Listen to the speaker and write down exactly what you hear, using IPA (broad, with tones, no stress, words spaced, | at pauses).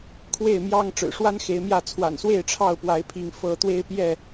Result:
kʰwe˥˨ɪ̯mjɑ˦ŋ ʈ͡ʂɻ̩˨˩ʂwa˦n xe˨˦ɪ̯mjä˥˨ t͡sʰwa̰˨˩nswe˥˨ɪ̯ ʈ͡ʂʰɑ˥˨ʊ̯ pwa˨˦ɪ̯pʰi˨˦ŋ fɤ˥˨ t̪we˦ɪ̯pjɛ˥˨